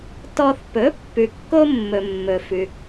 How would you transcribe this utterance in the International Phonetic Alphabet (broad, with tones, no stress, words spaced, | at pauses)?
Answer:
tɔ˧θ pɵ˩˥ pːʉ˩kːo˧mːɵ˩ mːɵ˩ fʉ˩